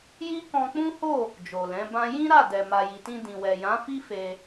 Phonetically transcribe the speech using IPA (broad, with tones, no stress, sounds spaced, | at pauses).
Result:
j i˦ k ɔ̃˧ k͡p ũ˦ h o˦˨ | d͡ʒ o˨ l ɛ̃˨˦ b ã˦ j ĩ˦ ɾ a˦˨ d ɛ˨ m a˨ j i˨ t ĩ˧ d ĩ˨ w ɛ˨ j ã˨˦ f i˦ f e˧